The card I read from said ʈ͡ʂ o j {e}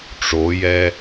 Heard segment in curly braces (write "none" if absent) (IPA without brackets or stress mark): ɛ